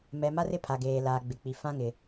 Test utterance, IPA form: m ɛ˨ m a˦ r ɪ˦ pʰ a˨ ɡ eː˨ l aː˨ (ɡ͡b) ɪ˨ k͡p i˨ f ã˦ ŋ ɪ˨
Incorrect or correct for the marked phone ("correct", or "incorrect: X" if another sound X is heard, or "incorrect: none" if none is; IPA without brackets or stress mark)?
correct